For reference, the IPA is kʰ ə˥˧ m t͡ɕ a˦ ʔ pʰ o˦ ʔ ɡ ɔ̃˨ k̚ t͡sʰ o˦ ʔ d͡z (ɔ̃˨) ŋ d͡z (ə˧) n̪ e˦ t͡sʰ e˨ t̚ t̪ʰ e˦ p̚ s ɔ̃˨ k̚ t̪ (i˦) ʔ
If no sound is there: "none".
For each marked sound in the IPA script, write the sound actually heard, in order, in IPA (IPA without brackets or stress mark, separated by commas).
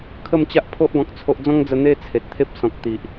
ɔ̃˦, ə˧, i˨